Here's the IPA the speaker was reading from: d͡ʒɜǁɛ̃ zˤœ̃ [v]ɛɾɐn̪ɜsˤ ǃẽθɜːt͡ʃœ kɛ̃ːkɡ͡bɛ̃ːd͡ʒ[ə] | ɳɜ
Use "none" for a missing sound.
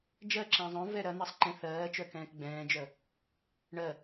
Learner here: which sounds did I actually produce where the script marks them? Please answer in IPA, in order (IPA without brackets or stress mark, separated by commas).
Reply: v, œ